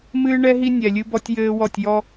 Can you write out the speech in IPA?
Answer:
mɨː˦ɳɛ˦ɦi˦ nʲɛ˨lʲɨ˦bɔ˦tʲ jɘː˦wɔ˦˨tʲjɔ˦

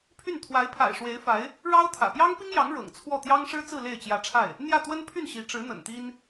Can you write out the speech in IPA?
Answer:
pʰy˥˩nt̪ʰwa˧˥ɪ̯ pʰa̰˨˩ɪ̯ʂwe˧˥ɪ̯fa˧˥ɪ̯ | ɻɑ˥ʊ̯t̪ʰä̰˨˩ pjɑ˥ŋpi˥ŋjɑ˧˥ŋ ɻɤ̰˨˩ŋ t͡sʰwɔ˥˩ t̪jɑ˥ŋʂɻ̩˥t͡sɹ̩˥˧ le˥˩ɪ̯ t͡ɕjä˧˥ʈ͡ʂʰa˥˩ɪ̯ | n̪jä˥˩t̪wə˥npʰy˥˩n ɕi˧˥ʈ͡ʂɻ̩˧˥n̪ə̰˨˩n t̪i˥n

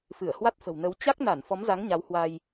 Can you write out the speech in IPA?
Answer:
fɨ˧˩ə̯hwa˦˥t̚fə̤˨˩w nə˨˦w t͡ɕa˦˥k̚na˧˩n fɔ˨˦mza˨˦ŋ ɲa˨˦whwa˧j

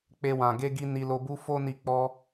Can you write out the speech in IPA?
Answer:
k͡pe˧wã˨ ɡe˧ɡi˧ ni˧lo˧bu˦ fo˧ ni˧k͡pɔ˧

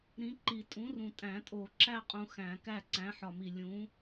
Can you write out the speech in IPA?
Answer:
ɾĩ˨˥ǃi˨˩˦ tʼũ˨˥rũ˨tʼæ̃˨˩˦tʼo˨˩˦ ǁæ˦qʼũ˨ xæ̃˨˩˦kæ˥˩ǀæ̃˨˥ ħɒ˨mi˨ lʲũ˨˥

